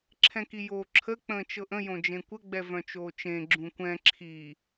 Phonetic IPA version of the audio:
ǁʰ ɛ̃ k i j oː ǁʰ ə k͡p ə̃ː t͡ʃ ɤ ʔ ə̃ j õ d͡ʒ ẽ kʷ ə ɡ͡b ɛ v œ̃ t͡ʃ oː t͡ʃ ẽ ɡ͡ǁ ũ kʷ ɛ̃ ǁʰ i

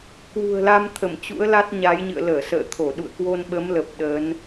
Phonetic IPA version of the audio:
k w ṳ˨˩ ə̯ l a˧ m t̪ʰ ə˧˩ m t͡ɕ ṵ˧˥ ə̯ l a˦˥ t̚ ɲ a˨˦ j ɲ ɨ̰˧˨ ə̯ l əː˧˩ s ə̰ː˧˨ t̪ʰ o˧˩ ɗ ṵ˧˨ ə̯ k w o˧ n ɓ ə˨˦ m l ə˨˩ p̚ ɗ əː˨˦ n

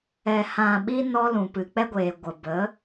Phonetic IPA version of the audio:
ɛ˨ h ã˨ ɓ i˧ n ɔ˧ l ũ˨ p ɨ˨ k͡p ɛ˦ ɡʷ eː˨ ɡʷ ə˨ b ə˨˦

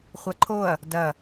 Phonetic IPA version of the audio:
χʷ ɐ ǃʰ o ɐ̯ | d ɐ

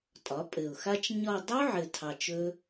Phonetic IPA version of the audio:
tʼ ɒ˩˥ pʼ ɘ˨˩ ʊ̯ x a˦˥ t͡ʃ ɲ ɒ˦˨ dˤ u˦˥ ʕ ɘ˨˩ tʰ ɑ˨˩ t͡ʃ ɵ˦˥

